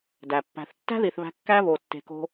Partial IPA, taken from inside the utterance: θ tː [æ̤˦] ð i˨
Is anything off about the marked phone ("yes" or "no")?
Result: no